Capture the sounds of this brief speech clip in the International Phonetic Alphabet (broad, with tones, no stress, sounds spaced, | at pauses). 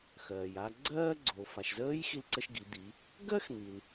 x ɜː˩ j a˧ ɡ͡ǀ ɜː˥ ɡ͡ǀ oː˩ f a˩ ʃ z əː˧˥ j x i˧ l ǀ ə˧ ʃ ɡ i˩˧ d̪ i˩˧ | ɡ ɜ˥ x n̪ i˩ l